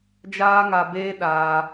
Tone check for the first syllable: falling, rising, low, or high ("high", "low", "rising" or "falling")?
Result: high